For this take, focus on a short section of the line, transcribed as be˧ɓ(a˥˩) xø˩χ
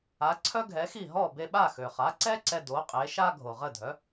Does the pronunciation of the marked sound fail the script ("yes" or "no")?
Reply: no